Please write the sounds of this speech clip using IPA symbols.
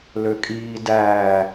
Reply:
l ø kʼ iː d æː

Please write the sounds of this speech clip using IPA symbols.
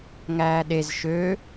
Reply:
ŋ æː ɗ e z ʃ ø

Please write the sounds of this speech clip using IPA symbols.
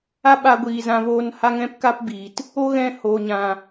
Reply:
a˦ ɓ a˧ ɡʷ iː˨ z ã˧ v oː˧ n h a˦ ŋ ɛ̃˦ p k a˦ p b iː˨ t | o˦ ɣ ɛ̃˧ h oː˨ ɲ ã˨

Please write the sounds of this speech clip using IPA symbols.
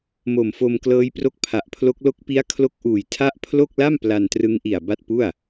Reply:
m o˨˩ m f o˧ m k l ɤː˦˥ j p r o˦˥ k̚ pʰ a˨˩ ʔ pʰ l o˦˥ k̚ l o˦˥ k̚ p i˦˥ a̯ kʰ l o˦˥ k̚ ʔ uː˨˩ j tʰ a˥˩ ʔ pʰ l o˥˩ k̚ l a˥˩ m p l a˧ n t r ɯ˦˥ ŋ ʔ i˨˩ a̯ b a˥˩ t̚ p u˥˩ a̯

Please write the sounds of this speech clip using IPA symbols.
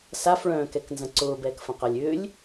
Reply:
s a f ɭ œ̃ː k ɛ k n z ɐ̃ ǀ ʊː b ɛː k f ɐ̃ q a lʲ ʏː lʲ

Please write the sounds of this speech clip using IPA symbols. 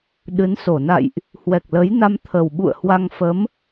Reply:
ɗ ɨ˨˦ n s o˧˩ n a̰˧˨ j ʔ | h w ɛ˨˩ k̚ l ə˨˦ j n a˧ m t̪ʰ ə˨˩ w ɓ ṵ˧˨ ə̯ h w a˧ ŋ f ə˨˦ m

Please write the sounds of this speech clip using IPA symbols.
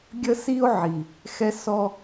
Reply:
ɡʲ ə˥ s i˥ o̯ ʕ i˩ | x ɛ˥ s ɔ˥

